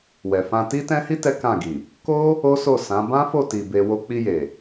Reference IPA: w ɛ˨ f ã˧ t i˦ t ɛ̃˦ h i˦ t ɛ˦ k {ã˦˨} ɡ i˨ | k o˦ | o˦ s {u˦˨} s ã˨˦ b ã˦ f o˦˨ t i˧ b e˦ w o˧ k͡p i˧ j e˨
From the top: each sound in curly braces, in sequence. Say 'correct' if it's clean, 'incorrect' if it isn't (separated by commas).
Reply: correct, incorrect